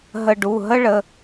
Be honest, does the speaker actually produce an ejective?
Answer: no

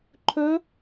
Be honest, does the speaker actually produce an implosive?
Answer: no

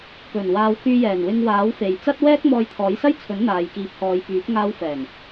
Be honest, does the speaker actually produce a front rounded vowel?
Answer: yes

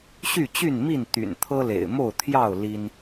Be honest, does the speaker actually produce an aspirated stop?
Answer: yes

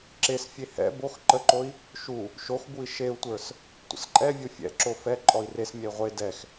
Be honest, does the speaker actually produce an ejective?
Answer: yes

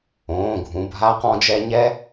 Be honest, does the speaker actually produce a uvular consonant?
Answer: yes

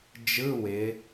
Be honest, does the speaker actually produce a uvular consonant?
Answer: no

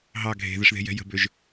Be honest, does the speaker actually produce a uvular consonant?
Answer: no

